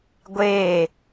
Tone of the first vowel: falling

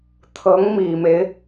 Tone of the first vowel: rising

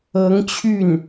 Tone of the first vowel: rising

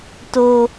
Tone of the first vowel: low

